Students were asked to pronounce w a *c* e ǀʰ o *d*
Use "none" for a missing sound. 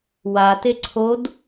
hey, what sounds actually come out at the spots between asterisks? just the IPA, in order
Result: t, d

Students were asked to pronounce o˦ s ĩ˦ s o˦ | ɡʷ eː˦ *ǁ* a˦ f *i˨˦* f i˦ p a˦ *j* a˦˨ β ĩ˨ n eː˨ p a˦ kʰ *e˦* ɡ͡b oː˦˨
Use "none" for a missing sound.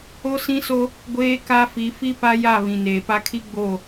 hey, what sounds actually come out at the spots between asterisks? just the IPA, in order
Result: k, i˨˦, j, i˦

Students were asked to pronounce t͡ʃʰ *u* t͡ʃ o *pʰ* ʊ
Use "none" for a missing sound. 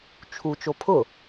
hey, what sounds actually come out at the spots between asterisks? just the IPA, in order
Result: u, pʰ

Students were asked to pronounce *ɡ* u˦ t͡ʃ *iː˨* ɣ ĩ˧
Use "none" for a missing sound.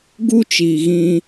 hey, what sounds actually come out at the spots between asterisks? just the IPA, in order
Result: ɡ, iː˨

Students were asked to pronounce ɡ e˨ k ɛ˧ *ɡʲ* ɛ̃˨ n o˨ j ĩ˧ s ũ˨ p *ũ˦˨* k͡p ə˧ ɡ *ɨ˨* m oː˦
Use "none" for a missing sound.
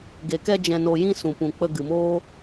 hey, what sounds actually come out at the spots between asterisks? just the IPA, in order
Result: d͡ʒ, ũ˨, ɨ˨

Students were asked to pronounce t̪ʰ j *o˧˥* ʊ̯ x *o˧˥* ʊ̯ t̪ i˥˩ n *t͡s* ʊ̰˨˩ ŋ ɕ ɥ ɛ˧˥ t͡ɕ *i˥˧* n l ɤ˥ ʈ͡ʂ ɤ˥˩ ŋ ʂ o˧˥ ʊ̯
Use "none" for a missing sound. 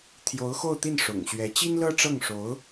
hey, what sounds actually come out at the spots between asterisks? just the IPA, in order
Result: o˧˥, o˥˧, ʂ, i˥

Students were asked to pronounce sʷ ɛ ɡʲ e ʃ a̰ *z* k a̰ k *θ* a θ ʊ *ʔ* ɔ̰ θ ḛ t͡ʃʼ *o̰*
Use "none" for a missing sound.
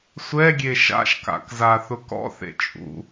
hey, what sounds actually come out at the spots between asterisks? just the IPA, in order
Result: ʃ, z, k, ṵ

